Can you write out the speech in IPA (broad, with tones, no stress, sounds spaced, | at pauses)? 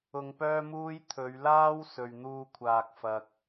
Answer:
ʊ˧ ŋ p œː˥ m uː˥ j t̪ʰ ɵ˨˧ ɥ l aː˥ w s ɵ˨ ɥ n̪ uː˧ kʷʰ aː˨ k̚ f ɐ˨ k̚